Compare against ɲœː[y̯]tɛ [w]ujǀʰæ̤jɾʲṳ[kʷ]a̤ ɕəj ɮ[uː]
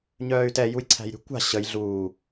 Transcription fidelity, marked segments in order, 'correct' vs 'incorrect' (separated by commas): correct, incorrect, correct, correct